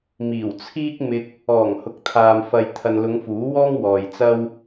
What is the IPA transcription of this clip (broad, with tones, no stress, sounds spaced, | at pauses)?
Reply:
m iː˨˩ w t͡sʰ iː˥ k̚ m ɪ˧ k̚ | ɔː˨˩ ŋ h ʊ˨ k̚ t̪ʰ aː˨ m f ɐ˨ j t̪ʰ ɐ˨ n l ʊ˨˧ ŋ f uː˨˥ w ɔː˥ ŋ w ɔː˨ j t͡s ɐ˥ w